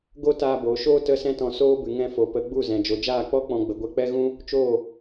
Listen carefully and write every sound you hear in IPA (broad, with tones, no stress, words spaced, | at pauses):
ɡo˦taː˧boː˨ʃoː˦ tə˦sɛ̃˦tɔ̃˧ soː˦bɨ˨ ŋɛ̃˧ fo˨pə˨˦ɡ͡bu˦˨zɛ̃˨ d͡ʒo˨d͡ʒaː˦˨k͡pɔ˦ k͡pɔ̃˧ɡ͡bə˨ ɡʷɛ˧k͡pɛ˦ɣũ˦ | t͡ʃoː˦˨